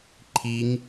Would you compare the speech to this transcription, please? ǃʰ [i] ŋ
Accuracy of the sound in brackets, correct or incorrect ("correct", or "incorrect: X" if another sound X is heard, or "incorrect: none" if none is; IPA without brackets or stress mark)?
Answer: correct